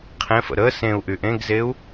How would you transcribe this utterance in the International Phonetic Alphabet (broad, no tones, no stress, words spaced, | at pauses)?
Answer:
qʰẽfə̰ ɾə sẽu̯ʔy ʔẽɡzeu̯